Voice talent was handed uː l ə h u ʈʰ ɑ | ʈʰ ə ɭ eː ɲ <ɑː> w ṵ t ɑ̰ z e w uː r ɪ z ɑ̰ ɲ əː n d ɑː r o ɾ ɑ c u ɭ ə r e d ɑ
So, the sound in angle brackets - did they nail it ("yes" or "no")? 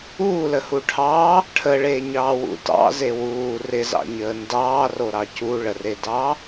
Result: yes